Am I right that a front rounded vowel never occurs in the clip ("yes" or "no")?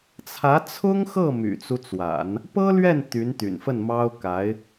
no